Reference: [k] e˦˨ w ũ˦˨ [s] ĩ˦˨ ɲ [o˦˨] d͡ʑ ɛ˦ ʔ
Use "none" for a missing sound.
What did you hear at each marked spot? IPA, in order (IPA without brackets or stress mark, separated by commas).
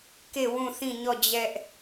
k, θ, ɔ˦˨